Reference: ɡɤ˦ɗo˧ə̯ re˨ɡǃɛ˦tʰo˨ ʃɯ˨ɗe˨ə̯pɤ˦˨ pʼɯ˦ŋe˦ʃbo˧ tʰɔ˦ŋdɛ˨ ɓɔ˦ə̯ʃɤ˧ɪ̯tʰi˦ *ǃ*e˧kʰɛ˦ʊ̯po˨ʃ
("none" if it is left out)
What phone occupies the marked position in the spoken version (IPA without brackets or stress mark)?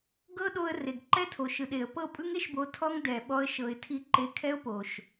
ǃ